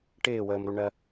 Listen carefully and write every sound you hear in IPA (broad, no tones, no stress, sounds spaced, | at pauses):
ʈ ɪː w əː m ɾ u ɳ ɜ